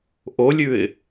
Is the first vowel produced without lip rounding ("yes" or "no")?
no